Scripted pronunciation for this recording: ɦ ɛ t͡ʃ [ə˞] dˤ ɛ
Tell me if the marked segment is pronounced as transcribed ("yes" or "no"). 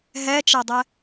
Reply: no